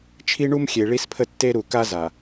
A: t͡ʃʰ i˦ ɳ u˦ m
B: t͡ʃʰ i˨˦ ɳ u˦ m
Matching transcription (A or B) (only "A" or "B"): A